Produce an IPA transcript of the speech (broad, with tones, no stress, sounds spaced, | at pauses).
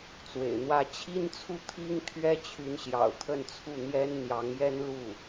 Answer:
t͡s w ḛ˨˩ ɪ̯ n̪ w ä˥˩ t͡ɕʰ i˥ n t͡sʰ u˥˩ t̪ʰ i˥ ŋ t̪ʰ ɥ ɛ˥ t͡ɕʰ y˧˥ n ɕ j ɑ̰˨˩ ʊ̯ t̪ʰ ə˥˧ n t͡sʰ u˥˩ n̪ j ɛ˥ n n̪ j ɑ˧˥ ŋ j ɛ˥ n l u˥˩